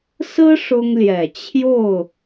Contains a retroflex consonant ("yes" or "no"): yes